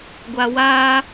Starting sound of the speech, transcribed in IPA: ɡʷ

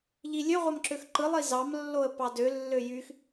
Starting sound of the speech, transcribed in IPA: ʎ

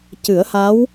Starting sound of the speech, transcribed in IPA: c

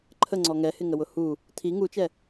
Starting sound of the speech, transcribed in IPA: ǃʰ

